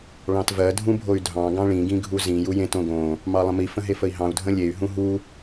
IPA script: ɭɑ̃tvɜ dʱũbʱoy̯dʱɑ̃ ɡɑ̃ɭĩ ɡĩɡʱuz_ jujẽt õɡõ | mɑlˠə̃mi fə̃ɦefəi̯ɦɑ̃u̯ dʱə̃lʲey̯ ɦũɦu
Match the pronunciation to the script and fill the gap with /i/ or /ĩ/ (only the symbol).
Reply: ĩ